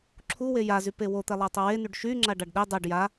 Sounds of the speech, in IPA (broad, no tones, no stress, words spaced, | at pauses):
ǁʰu wejazy pewot̪ɛlˠa tˤowenyɖ ʃyŋ͡ǁa ɖaɖɗe dˤɛɖ ja